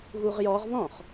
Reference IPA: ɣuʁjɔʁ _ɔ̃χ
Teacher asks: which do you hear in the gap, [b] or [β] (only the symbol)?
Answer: β